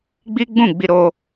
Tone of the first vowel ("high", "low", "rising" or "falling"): high